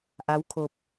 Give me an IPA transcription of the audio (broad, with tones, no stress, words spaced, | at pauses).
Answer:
ʔa˧˥wkʰo˧p̚